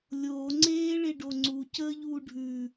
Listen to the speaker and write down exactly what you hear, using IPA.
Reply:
lʲ oː ŋ͡ǀ eː ɭ e ɖ o ŋ͡ǀ u c əː ʎ uː ɖʱ ʉ

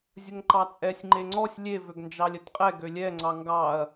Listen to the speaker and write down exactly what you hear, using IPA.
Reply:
zʲ ə ŋ ǃ ɑ t͡sʼ ɛ sʲ ŋ͡ǃ e ŋ͡ǀ ɔ sʲ lʲ e v ø ɡ n d͡ʒ ɑ lʲ ə t qʼ ɛ ɡ ø lʲ ɛ ŋ͡ǀ ɑ ŋ ɡ ɑ ɐ̯

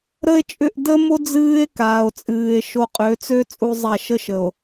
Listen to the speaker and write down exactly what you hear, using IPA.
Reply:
ɾ ə˦ e̯ t͡ʃʼ ʏ˦˨ ʔ d ə˦ m o˦ d͡z ɨː˦ e̯ k aː˨ o̯ t͡sʼ ɨː˨ e̯ ʃ o˨ qʼ ø˨˦ t͡s ø˦ t͡sʼ u˦ zˤ a˦˨ ʃ ə˦ ʃ ə˨ o̯

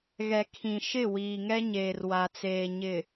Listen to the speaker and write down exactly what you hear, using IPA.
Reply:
ɣ ɛ˨ kʰ ĩ˨ ʃ ɪ˦˨ w iː˨ ŋ ɛ˦ ɲ eː˨ r w a˨ t͡s eː˨ ɲ ɪ˨

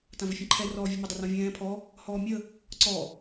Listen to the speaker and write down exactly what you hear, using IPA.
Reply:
t ã v ʏ fʲ ə̃ ǃʰ ɛ r ɔː vʲ ɛ m ə dˤ ʏ r ɔ̃ vʲ ɛ̃ː pʰ ɔ | h ɔː mʲ ə | ǀ ɔ

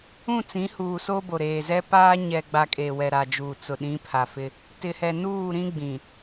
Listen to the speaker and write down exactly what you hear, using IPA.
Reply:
ũ˦˨ t͡s ĩ˨˦ h uː˨ s o˦ b o˨ ɾ eː˨ z ɛ˦ p aː˦ ɲ ɛ˨ ɡ͡b a˨ kʼ e˨ w ɛ˨ ɾ a˨ d͡ʒ uː˨ t͡s ʊ˨ ɗ ĩ˨˦ pʰ a˨ f ɪ˦ | t ɪ˨ h ɛ˨ n uː˦˨ ɾ ĩ˦ ɡ͡b ĩ˨

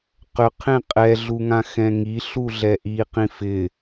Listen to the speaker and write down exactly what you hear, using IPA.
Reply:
q ʏ qʰ ẽ qʼ ɛ ɮ u ŋ ã x ɛ̃ ŋ i ɬ u ɮ ɛ ʔ i q ĩ f ɪ

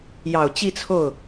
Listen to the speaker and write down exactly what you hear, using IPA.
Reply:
j ɑ˨˩ ʊ̯ t͡ɕ i˥˧ t͡sʰ o˥˩ ʊ̯

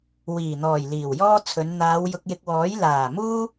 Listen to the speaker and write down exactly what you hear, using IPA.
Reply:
w iː˨˩ n̪ ɔː˨˩ j l iː˨˩ w j ɔː˥ t͡sʰ ɵ˨˧ n n̪ aː˨˧ w j ʊ˧ k̚ j ɪ˧ k̚ w ɔː˨˥ j l aː˨˩ m uː˥

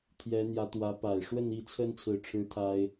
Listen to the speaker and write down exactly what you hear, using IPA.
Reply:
t̪ʰ j ɛ˧˥ n̪ j ä˧˥ t̪ w ä˧˥ p a˨˩ ɪ̯ ʂ w ə˥˧ n i˥˩ t͡sʰ ə˥ n t͡sʰ ɹ̩˥˩ ʈ͡ʂʰ ɻ̩˥ t̪ʰ a˥ ɪ̯

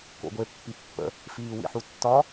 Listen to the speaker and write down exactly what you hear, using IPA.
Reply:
k o̰ ɡʷ e pː i pː ə̰ | f iː w ḭ ħ u tː ɒ

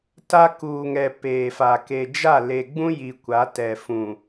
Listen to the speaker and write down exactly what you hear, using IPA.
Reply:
t a˦ k uː˨ ŋ ɛ˨ p eː˨ f a˨ k e˨ d͡ʒ a˦˨ l e˨ ɡ͡b ũ˦ j i˨ kʷ a˨˦ t ɛ˨ f ũ˨

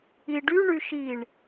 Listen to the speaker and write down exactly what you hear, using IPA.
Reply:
i ɖ y ɳ y ʃ i ɳ

